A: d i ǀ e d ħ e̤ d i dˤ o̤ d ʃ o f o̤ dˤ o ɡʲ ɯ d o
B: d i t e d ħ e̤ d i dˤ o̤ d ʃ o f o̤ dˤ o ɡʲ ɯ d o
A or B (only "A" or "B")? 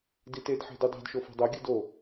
B